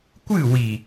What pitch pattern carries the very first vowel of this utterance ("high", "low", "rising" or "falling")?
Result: falling